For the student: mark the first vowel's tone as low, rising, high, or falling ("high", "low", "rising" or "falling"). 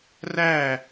falling